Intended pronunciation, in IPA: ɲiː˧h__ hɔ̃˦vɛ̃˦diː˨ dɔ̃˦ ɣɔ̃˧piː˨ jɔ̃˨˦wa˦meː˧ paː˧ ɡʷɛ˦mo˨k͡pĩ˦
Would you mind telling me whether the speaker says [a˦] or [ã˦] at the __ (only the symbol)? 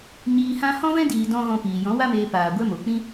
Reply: ã˦